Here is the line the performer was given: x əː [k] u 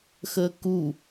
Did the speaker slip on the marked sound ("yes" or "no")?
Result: no